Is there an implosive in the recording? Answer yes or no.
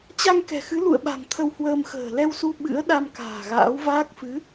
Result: yes